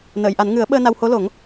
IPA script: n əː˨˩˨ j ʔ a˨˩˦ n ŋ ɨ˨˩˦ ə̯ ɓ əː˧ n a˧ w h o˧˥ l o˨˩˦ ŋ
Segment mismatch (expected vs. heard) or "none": none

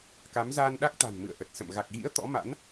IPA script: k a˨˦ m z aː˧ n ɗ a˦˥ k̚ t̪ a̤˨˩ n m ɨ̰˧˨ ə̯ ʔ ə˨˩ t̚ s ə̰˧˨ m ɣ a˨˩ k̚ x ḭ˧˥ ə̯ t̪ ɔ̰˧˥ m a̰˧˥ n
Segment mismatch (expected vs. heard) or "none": x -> ɣ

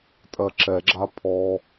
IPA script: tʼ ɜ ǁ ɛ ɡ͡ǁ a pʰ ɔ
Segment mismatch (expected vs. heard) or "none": none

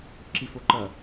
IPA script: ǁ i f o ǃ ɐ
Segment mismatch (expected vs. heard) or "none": none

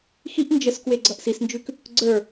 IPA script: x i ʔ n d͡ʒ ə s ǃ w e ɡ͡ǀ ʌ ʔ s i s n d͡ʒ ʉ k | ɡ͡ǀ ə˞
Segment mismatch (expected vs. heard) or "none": ǃ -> k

